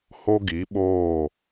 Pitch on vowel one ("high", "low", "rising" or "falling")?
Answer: high